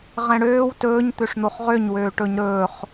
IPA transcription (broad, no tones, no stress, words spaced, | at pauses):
ʁɛ̃ɽøːw tɵːɲ t̪øʂn̪oχʁøɲ wøːʈɵɲɾɵːχ